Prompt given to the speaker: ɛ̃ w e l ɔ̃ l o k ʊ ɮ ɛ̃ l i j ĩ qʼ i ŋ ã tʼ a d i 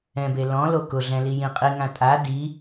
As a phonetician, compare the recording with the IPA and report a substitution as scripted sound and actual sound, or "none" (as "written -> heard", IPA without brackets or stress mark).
w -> b